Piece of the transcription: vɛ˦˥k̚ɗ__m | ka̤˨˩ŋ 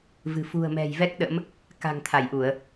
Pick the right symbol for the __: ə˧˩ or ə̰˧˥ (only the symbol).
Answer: ə̰˧˥